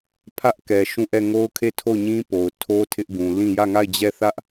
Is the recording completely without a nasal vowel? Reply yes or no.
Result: no